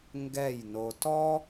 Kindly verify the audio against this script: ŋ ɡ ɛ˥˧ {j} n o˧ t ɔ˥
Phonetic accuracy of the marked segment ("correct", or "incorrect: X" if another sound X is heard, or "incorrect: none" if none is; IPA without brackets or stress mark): correct